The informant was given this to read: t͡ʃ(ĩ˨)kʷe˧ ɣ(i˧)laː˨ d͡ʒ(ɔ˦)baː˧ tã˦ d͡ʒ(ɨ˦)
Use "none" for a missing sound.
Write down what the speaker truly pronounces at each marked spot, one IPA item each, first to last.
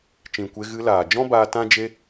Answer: ĩ˨, ɨ˧, ɔ̃˦, e˦

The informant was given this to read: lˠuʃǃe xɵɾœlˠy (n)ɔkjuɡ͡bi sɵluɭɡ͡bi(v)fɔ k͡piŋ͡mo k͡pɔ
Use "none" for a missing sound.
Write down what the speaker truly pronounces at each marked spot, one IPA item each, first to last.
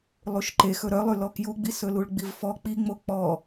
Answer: l, v

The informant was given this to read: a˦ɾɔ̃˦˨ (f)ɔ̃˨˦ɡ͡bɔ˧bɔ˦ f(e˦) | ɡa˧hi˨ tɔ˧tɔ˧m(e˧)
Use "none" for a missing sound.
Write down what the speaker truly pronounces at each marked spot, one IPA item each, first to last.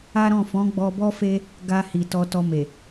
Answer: f, e˦, e˨

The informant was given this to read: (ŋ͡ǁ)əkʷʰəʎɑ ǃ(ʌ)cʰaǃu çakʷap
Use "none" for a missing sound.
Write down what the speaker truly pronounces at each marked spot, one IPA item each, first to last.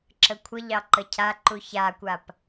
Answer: ǁ, ə

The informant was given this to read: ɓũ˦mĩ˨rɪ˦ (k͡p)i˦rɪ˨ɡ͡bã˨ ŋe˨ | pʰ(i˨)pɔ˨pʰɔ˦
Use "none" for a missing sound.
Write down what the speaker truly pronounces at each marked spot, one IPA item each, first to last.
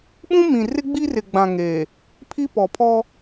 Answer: ɡ͡b, i˦

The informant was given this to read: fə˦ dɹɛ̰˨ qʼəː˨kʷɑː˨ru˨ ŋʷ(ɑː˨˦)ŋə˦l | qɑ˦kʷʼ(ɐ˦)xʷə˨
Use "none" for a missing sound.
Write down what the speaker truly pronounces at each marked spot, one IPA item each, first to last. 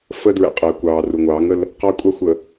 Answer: ɑː˨˦, ɑ˦

